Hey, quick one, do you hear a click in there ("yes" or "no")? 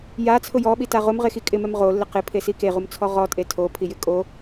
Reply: no